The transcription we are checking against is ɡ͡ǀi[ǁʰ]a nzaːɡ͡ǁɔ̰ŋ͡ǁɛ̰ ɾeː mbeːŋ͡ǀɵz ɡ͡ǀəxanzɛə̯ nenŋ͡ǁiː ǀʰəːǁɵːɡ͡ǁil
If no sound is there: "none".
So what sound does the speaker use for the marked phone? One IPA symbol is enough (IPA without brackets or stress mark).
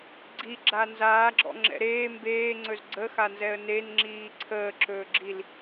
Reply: ɡ͡ǁ